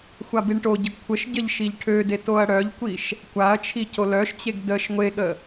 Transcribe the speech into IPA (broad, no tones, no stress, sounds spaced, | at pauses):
xʷ a b i ɳ ʈ o ɟ ə ɡ kʷʰ ə ʃ ɟ ə ʎ ʃ i ʎ ʈʰ ø d e t o ɐ̯ ɽ œ ʎ kʷ i ʃ | kʷ a ɐ̯ t͡ʃʰ i c o l œ ʃ t͡ɕ e ɡ d ə ʃ ŋʷ e ɠ ə